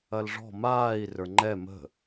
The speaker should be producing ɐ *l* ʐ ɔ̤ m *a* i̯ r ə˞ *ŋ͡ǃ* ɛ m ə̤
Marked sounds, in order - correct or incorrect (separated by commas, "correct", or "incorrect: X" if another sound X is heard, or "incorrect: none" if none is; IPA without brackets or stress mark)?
correct, incorrect: aː, correct